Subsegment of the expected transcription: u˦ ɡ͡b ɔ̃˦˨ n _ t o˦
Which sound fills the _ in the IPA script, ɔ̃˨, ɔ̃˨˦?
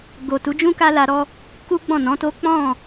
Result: ɔ̃˨˦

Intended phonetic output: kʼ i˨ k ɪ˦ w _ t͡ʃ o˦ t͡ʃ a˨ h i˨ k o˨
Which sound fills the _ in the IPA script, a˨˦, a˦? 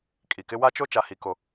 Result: a˦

